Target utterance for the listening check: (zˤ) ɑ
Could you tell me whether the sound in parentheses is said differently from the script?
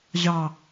yes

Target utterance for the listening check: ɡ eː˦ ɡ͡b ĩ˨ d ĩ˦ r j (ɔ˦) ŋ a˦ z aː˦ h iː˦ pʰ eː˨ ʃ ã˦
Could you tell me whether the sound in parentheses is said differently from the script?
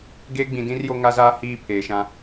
yes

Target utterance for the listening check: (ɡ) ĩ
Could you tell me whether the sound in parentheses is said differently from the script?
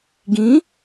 no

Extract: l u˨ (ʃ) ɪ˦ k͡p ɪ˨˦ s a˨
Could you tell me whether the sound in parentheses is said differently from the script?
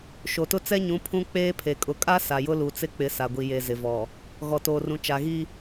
yes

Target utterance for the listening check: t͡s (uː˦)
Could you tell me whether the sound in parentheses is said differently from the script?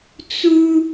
yes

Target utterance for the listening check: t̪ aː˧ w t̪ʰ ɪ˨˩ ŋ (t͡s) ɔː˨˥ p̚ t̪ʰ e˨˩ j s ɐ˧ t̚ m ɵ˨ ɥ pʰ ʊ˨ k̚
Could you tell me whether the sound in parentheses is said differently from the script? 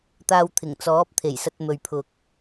no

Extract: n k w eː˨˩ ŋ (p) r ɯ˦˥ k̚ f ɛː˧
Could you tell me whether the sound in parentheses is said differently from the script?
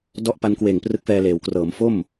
no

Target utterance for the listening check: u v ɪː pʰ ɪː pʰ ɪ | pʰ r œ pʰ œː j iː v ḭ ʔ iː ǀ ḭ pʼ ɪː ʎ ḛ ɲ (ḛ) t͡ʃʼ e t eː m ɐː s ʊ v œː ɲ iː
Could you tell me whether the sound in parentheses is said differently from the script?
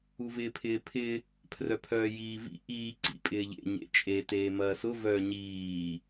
no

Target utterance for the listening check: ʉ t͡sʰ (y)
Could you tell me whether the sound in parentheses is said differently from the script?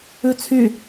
no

